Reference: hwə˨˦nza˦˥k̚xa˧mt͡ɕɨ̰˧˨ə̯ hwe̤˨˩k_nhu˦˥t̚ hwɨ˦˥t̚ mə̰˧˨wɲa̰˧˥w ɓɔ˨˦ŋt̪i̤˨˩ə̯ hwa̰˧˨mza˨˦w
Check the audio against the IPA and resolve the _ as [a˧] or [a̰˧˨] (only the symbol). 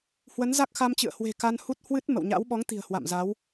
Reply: a˧